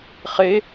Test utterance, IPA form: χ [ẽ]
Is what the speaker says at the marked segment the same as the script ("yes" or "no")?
no